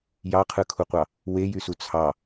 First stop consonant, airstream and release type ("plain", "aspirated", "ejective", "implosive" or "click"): aspirated